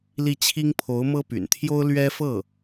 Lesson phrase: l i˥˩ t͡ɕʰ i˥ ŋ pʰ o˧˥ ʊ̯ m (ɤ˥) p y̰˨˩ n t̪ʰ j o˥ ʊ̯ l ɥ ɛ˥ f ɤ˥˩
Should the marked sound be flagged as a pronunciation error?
no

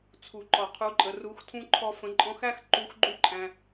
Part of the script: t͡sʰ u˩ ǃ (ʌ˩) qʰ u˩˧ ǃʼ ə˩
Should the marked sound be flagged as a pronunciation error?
yes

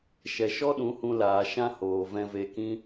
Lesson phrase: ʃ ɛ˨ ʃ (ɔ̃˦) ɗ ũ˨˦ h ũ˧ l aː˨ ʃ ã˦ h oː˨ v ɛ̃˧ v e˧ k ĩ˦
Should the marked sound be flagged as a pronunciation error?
yes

